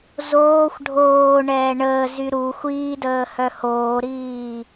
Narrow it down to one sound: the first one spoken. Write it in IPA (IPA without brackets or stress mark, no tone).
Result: z